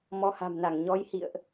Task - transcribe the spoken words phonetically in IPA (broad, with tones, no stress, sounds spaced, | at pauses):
m ɔ˨˦ h a̤˨˩ m n a˧˩ ŋ ɲ ɔ˨˦ j h ḭ˧˨ ə̯ ʔ